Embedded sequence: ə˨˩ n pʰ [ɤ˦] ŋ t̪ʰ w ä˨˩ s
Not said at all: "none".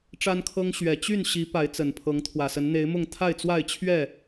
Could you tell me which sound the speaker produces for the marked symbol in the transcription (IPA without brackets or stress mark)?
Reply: ɤ˨˦